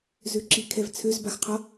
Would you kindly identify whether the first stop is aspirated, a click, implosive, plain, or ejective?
click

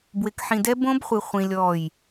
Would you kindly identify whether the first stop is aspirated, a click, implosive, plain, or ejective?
plain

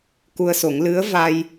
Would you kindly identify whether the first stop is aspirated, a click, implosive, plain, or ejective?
plain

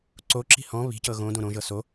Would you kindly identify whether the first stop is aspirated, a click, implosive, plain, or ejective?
click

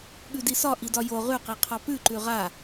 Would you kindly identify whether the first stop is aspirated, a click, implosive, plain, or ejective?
implosive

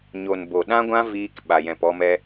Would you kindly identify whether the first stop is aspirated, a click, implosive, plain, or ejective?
plain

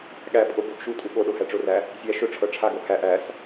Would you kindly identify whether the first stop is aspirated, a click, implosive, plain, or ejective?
implosive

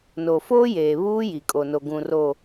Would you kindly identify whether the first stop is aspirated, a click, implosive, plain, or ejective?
ejective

